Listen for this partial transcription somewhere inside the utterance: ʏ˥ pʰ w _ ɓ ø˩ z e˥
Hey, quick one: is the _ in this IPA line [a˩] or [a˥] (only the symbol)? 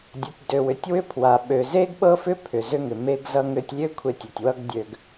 a˩